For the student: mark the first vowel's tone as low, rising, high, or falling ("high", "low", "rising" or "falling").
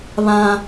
high